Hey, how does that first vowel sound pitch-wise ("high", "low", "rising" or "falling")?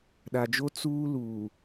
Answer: low